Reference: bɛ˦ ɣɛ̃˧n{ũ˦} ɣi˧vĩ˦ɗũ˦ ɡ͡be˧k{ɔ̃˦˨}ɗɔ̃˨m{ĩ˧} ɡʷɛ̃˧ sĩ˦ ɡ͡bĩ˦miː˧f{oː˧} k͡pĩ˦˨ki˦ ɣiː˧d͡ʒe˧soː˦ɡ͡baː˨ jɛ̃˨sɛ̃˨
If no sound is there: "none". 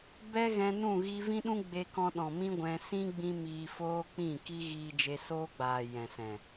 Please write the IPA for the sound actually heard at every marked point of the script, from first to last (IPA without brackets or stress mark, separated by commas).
ũ˦˨, ɔ̃˧, ĩ˦, oː˦